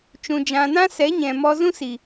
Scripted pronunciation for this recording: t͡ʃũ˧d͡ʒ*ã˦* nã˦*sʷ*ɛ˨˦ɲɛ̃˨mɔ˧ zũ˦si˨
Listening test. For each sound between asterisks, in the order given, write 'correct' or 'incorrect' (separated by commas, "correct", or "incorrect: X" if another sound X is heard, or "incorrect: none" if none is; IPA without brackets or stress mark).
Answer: incorrect: ã˧, incorrect: s